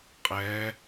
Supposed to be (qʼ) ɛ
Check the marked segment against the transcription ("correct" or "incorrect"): correct